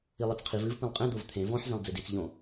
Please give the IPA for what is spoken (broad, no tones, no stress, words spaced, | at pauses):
ilˠet͡sqʰiv ɨvpĩlˠ qʼẽ d̪ovt̪ʰẽ vɔ̃ħ zẽlˠd͡zidit͡s ʎõ